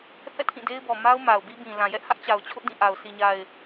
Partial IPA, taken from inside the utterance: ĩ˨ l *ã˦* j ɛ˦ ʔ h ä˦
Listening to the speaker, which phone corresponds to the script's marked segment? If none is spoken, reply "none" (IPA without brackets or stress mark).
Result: ã˨